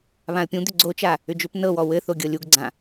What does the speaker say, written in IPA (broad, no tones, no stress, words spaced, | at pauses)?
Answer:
βãə̯pʲũ d̪ʏɡ͡ǀot͡ʃa | ʏd͡ʒʏp nɤwɔ wɘθo ɡʲɤlʲuɡɡ͡ǀã